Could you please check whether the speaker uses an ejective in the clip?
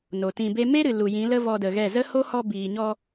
no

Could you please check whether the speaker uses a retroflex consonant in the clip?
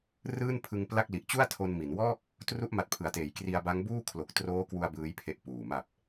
no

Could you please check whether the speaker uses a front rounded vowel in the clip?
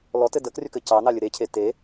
yes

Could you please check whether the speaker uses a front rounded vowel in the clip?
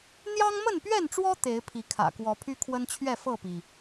yes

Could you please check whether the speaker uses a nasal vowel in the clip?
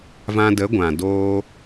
yes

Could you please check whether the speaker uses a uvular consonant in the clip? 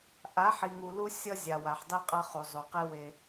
yes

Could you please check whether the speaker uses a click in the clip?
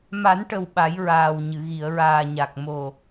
no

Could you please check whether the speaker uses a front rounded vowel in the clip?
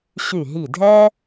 yes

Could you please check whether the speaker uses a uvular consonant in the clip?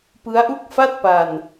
no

